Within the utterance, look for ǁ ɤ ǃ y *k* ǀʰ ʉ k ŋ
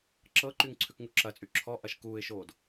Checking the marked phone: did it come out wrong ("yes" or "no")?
yes